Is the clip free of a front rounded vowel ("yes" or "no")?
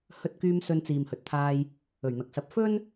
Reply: no